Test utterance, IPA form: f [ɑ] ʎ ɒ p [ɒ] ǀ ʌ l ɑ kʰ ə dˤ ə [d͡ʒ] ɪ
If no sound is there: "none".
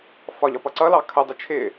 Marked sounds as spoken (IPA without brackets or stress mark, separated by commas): ɒ, ʌ, t͡ʃʰ